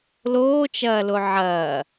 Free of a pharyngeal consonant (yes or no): no